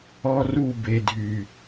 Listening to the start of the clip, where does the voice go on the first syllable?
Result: high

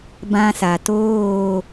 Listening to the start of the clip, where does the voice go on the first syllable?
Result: high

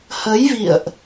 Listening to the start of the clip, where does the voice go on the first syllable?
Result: rising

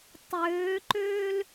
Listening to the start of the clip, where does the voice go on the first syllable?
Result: rising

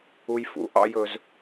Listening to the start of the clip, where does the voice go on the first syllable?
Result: high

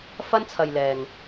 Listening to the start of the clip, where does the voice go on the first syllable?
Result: high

